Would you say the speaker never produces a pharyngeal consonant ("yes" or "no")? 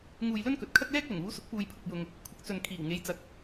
yes